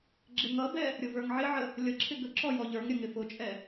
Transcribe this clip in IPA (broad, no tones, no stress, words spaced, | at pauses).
ɡ͡ǁɪŋʌbɛ | ɾʲʊvə˞ŋʕɪʕə | lʲʌǁʰɪ ɡəǁɔ jɔʎə˞ŋɾʲə ŋɪfʊt͡ʃʼɛ